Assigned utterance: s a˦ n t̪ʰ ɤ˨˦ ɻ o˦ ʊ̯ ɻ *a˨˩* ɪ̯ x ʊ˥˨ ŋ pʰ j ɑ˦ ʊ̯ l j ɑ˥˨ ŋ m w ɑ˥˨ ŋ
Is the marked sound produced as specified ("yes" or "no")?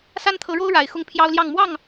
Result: yes